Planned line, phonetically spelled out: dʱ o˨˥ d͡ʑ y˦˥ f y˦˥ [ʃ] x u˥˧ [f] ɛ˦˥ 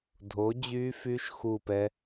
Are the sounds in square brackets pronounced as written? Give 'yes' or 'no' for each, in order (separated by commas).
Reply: yes, no